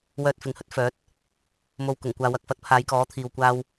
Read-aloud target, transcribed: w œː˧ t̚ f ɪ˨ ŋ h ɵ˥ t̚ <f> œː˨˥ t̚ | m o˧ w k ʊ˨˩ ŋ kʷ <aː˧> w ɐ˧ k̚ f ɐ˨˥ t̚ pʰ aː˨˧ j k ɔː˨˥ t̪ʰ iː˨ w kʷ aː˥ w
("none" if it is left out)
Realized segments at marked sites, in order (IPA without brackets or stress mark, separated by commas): f, aː˧